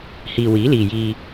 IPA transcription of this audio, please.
h iː˨ w iː˨˥ l iː˨ j iː˧

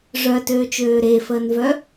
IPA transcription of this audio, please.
ʐ œ t øː t͡ʃ øː ɾ e f əː n v œ

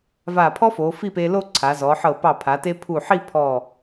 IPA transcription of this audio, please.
v a˧˩ pʰ ɔ˥ f o˩˧ f i˥˧ p e˧ l o˥˧ ǀʰ a˩˧ z ɔ˩˧ ħ ɤ˧˩ p ɑ˧˩ pʰ a˩˧ t e˧ pʰ u˧˩ ħ i˥˧ pʰ ɔ˧˩

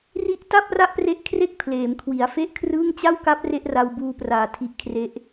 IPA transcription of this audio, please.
r i˥˩ ʔ t a˥˩ p̚ r a˥˩ ʔ p r e˦˥ ʔ kʰ r e˥˩ k̚ pʰ l eː˩˦ m kʰ w i˩˦ a̯ f e˥˩ ʔ kʰ r ɯː˥˩ ŋ t͡ɕ a˥˩ w k a˦˥ p̚ r e˥˩ ʔ r a˧ w b uː˧ p r aː˨˩ tʰ i˦˥ ʔ kʰ r e˦˥ ʔ

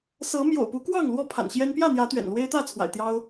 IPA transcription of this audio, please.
s ɤ˨˦ m j o̰˨˩ ʊ̯ p u˨˦ k w ɑ˥˨ ŋ l w ɔ˥˨ pʰ a̰˨˩ n ɕ j ɛ˦ n p j ä˥˨ n̪ j ä˨˦ t̪ ɥ ɛ̰˨˩ n l w e˦ ɪ̯ t̪ ä˥˨ t͡sʰ w a̰˨˩ ɪ̯ t̪ j ɑ˦ ʊ̯

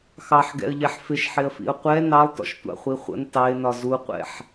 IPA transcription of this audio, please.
x ɑ ħ ɡ ɛ̰ ə̯ ʎ ɛ ħ f ɪ ʃ ħ ɪ ə̯ f ḭ ʊ̯ qʷ ɛ n ɑ lˠ t ɔ̰ ʃ tʷ ɑ̰ χʷ i χʷ ə̰ n t ɑ ɪ̯ n ɒ z u qʷ ɛ̰ ħ

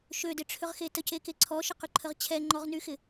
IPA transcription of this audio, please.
ʃ ø d ɪ ʈ͡ʂʰ ʏ ʁ x e t ə c e k e ǀʰ ɔ ʃ ə q y ǃʰ ə ʁ t͡ɕʰ ɛ ŋ͡ǃ ɔ ʁ n y x ɪ

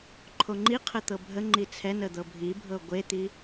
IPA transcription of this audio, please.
ǃʰ o ŋ͡ǃ i qʰ ə t̪ ɤ bʱ ə ŋ͡ǃ i t͡sʰ ɛ n ə d̪ ɤ bʱ i bʱ ɤ ɡʷ e t̪ i

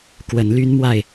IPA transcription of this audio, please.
k w ə˨˦ n l y˦ n m w a˥˨ ɪ̯

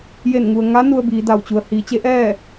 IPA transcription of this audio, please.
j e˧˩ n ŋ u˩ ə̯ ŋ a˧˥ n u˧ ə̯ b iː˩˧ d a˧˩ w t͡ɕ u˩ ə̯ h iː˩˧ t͡ɕ e˧˥ ʔ ɛː˥˨

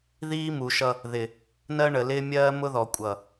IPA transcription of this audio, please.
ð iː˦ m u˨ ʃ ʌ˦ | ð ɪ˨ | n ɜ˦ ɳ ə˨ l ɪː˦ mʲ ɜː˦ m ʊ˦ ð ɔ˨ kʷʼ ʌ˨

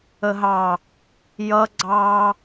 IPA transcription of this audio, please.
ə ɦ ɑ | j ʌ ɡ͡ǀ ɑ

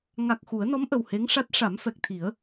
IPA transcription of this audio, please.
ŋ a˨˩ k̚ x u˨˩˦ ə̯ n ɔ˧˥ m ʔ ə˨˩ w h e˧˥ ŋ ʂ a˦˥ t̚ ʂ a˨˩˦ m f ɛ˨˩ k̚ t̪ʰ i˨˩˦ ə̯

